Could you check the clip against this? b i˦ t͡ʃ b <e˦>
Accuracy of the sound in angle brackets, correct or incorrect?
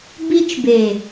incorrect